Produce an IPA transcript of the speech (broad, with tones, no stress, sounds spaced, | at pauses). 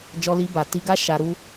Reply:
d͡ʒ ɔ˧ l i˧ b a˨ t i˧ ɡ a˦ ʃ a˧ ɾ u˦